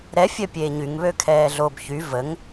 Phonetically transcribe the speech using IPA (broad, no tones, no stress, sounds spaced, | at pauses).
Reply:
ɾ ɛ fʲ œ pʲ eː ɲ y ŋ β ø kʰ ɛː ɮ o b ç y v ə ŋ